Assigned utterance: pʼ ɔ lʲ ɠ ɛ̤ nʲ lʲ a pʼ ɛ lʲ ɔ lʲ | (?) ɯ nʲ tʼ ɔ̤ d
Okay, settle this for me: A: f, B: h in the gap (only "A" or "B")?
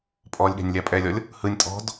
B